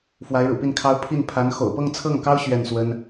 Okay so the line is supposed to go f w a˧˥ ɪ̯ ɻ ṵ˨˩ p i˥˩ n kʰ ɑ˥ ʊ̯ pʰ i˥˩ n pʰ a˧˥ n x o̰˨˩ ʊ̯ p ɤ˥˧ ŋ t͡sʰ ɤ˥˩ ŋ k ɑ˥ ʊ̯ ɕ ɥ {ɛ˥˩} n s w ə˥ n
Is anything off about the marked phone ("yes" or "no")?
no